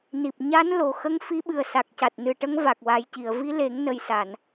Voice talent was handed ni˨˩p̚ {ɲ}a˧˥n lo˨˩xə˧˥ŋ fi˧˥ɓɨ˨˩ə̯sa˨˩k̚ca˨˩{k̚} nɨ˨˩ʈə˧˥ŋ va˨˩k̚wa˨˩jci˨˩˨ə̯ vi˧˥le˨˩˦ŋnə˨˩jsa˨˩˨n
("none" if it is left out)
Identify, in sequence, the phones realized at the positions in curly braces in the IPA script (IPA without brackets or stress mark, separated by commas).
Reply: ɲ, t̚